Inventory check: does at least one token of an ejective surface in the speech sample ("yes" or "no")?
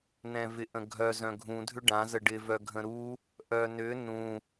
no